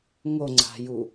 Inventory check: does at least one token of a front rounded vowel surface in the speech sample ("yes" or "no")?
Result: no